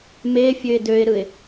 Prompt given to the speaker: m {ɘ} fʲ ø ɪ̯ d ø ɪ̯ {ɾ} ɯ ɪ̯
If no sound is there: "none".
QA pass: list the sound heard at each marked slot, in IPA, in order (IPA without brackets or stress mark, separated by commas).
e, ɾ